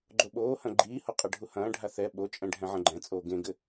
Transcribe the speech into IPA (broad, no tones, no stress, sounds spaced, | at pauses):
ɡ͡ǃ o ɓ oː h ɐ̃ ɡ͡ǃ iː h o qʼ ɐ ɖʱ u h ɐ̃ː ɖʱ a θ ɛ ɓ o t͡ʃʼ ɛ̃ ɖʱ ɛ̃ ʕ ɐ̃ ɡ͡ǃ ɛ̃ t͡sʼ oː ɡ ẽ ɡ ɘ